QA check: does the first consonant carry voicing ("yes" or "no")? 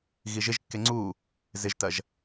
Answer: yes